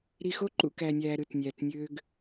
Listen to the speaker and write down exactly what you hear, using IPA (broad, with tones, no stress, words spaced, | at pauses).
ɾi˨xo˦ ǃṵ˨ kæ˨nʲæː˨ ɾɯ˦˨tnʲæː˨tnʲøː˦ɡ